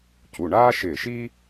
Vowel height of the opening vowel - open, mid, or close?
close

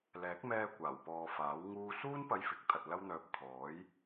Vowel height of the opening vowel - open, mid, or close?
mid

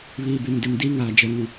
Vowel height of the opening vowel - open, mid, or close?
close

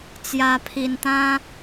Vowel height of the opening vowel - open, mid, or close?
open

